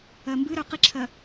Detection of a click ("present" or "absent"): present